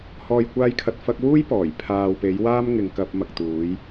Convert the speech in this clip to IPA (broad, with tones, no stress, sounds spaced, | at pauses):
h ɔː˨ j kʷ aː˧ j kʰ ɐ˨ t̚ f ɐ˧ k̚ w uː˥ j p ɔː˨˩ j pʰ aː˨ w p e˨˧ j w aː˥ m ŋ ɪ˨ ŋ k ɐ˧ p̚ m ɐ˨ k̚ t̪ uː˨˧ j